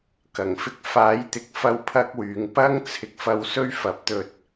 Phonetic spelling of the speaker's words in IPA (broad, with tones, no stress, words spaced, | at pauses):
kɐ˨˩ŋfɪ˧k̚ faː˨˥jt̪ɪ˨˥k̚fɐ˧w pʰɐ˥k̚wyː˨˥ŋ pɐ˥ŋ t͡sʰɪ˨˥k̚fɐ˧wsɵ˥ɥ fɐ˨˥p̚t̪ɵ˧t̚